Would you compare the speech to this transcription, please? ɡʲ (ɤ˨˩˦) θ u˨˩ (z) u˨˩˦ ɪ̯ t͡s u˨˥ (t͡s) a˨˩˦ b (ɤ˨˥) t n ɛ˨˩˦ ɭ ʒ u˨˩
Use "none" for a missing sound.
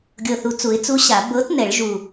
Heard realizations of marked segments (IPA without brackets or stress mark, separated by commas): ɤ˨˩, t͡s, ɕ, ɤ˨˥